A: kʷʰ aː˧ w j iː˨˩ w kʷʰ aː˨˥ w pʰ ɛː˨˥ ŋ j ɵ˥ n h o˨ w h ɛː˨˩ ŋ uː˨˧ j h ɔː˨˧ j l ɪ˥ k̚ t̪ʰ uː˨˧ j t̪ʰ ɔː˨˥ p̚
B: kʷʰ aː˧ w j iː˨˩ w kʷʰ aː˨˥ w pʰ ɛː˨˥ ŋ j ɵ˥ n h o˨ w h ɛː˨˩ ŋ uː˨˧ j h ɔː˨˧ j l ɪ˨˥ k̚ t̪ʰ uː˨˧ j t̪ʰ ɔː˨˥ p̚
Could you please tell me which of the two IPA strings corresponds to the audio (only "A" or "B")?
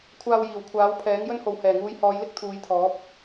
A